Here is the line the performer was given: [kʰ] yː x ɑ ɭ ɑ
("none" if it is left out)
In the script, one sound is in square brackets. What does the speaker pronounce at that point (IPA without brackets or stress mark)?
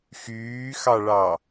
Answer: x